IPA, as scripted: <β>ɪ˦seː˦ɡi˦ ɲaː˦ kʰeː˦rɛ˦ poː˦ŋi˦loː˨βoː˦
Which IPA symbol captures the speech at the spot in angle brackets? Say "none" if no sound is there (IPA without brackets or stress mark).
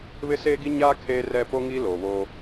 β